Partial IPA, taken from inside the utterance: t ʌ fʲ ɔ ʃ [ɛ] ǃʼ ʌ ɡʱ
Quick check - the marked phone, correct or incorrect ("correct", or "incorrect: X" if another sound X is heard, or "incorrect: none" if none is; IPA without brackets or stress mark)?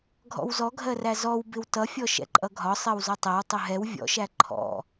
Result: incorrect: ɛ̰